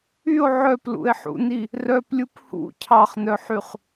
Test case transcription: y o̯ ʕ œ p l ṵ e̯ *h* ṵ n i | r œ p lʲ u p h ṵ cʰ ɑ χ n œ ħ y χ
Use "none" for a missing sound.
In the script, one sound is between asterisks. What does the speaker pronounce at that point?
ħ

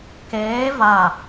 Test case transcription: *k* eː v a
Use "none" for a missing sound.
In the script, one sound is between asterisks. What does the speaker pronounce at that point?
k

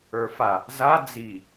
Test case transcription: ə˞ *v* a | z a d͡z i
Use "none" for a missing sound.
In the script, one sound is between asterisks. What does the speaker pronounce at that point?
f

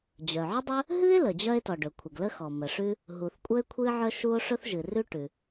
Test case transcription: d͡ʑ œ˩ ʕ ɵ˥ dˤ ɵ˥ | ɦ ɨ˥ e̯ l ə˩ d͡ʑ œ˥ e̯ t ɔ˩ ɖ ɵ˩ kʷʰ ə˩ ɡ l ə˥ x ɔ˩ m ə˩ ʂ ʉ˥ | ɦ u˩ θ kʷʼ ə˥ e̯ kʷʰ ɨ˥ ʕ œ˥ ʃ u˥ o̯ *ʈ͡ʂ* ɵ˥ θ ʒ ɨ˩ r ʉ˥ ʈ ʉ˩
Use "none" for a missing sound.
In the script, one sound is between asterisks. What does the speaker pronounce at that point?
ʂ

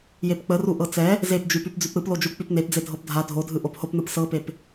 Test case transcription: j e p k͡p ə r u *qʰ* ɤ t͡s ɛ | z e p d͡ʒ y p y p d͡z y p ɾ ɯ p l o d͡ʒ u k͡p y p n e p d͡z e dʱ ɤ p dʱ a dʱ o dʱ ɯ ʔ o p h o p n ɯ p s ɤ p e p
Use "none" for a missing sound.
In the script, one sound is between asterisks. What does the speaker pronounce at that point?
ʔ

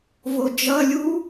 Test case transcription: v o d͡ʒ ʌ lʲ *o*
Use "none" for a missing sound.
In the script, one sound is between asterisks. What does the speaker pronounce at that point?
u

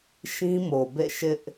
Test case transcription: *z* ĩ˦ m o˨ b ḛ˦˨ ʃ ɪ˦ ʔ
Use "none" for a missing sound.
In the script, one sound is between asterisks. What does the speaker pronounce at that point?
ʃ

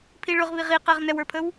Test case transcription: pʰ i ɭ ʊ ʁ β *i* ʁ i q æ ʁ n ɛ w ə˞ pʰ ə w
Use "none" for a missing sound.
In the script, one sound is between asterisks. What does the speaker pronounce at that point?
i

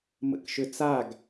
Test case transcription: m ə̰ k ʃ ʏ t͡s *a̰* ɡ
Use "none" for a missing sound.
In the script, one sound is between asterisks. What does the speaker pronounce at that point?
a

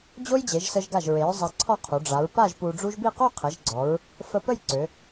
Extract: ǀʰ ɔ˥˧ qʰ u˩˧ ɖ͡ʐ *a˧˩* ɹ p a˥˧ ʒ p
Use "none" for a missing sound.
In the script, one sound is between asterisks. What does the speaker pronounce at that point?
a˩˧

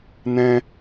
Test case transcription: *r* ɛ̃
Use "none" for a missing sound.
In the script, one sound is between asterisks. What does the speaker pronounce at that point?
n̪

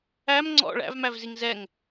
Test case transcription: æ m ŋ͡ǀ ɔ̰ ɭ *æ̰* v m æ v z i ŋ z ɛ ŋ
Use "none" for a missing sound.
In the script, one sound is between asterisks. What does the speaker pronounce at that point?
æ̰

